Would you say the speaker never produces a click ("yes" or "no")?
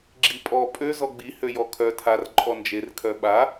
no